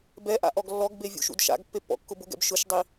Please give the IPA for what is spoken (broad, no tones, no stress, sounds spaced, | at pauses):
b ɛ ʔ a̰ ʔ ɔ ɡ lː ɔ ɡ b e vʲ ṵ ʃ ṵ d ʃ a̰ ɡ pː e pː ɔ̰ kː ʊ b ʊ ɡ ɛ̰ b ʃ ʊ ʃ dˤ i